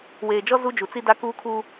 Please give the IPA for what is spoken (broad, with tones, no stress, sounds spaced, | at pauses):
w eː˨ d͡ʒ ɔ˦ z u˦ d͡ʒ u˨ t͡s i˦ d a˦ k uː˦ kʰ uː˦